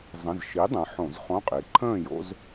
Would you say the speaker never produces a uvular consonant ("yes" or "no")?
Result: no